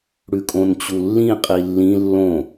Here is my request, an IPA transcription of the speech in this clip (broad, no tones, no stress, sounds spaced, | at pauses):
ɽ ʉ kʼ õ n t͡ɕ u lː ĩ qʼ i lː ĩ lː õ